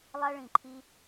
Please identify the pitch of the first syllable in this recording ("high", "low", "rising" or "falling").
high